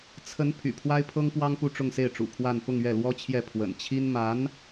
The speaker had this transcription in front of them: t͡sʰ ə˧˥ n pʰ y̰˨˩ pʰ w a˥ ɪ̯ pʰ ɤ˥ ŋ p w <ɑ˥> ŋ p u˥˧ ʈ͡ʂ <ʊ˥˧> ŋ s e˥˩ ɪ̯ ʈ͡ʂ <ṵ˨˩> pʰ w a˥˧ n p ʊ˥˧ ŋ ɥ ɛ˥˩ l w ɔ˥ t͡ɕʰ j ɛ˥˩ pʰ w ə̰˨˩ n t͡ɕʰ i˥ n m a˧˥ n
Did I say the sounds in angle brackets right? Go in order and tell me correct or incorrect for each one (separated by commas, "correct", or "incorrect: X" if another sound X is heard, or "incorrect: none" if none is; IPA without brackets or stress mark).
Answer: correct, correct, correct